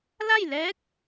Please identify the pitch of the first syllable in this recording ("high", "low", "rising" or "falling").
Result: falling